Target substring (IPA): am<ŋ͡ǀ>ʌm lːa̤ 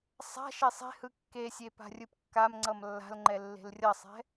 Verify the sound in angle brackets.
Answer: correct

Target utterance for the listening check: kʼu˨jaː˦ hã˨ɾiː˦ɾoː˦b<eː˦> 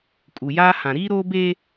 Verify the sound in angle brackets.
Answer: correct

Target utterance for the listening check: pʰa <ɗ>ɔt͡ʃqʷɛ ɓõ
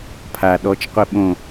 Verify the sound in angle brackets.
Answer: correct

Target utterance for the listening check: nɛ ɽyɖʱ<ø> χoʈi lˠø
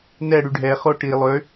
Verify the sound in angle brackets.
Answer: incorrect: ɛ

